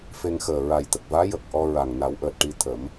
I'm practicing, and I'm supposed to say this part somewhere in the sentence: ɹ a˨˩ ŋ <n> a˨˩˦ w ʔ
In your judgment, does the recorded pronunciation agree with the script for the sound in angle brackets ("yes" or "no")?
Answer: yes